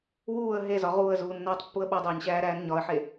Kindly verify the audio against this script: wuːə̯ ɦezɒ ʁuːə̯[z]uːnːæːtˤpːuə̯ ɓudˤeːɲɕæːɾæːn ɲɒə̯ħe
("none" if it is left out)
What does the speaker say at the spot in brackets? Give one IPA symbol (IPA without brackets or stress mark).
z